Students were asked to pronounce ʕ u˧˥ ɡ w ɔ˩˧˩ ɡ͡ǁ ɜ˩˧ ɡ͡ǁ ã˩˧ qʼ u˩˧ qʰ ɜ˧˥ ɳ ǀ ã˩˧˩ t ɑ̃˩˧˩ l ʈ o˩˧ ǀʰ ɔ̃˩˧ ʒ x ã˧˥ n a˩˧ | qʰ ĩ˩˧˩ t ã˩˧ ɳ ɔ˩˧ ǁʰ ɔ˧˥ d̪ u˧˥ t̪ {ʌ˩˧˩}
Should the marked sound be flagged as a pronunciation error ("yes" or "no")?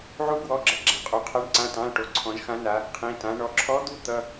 no